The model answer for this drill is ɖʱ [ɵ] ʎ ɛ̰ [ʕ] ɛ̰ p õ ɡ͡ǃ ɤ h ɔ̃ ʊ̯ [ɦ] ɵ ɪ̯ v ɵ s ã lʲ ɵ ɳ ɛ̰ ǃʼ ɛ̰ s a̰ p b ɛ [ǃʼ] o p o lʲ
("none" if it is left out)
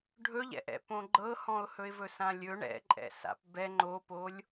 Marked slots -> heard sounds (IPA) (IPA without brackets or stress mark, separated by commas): ɵ, ʔ, h, ŋ͡ǃ